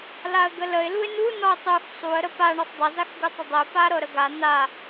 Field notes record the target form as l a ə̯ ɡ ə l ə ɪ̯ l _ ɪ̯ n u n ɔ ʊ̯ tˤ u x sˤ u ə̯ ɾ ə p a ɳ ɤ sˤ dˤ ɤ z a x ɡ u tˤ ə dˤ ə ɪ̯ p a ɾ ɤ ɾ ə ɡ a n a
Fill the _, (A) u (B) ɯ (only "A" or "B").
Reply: A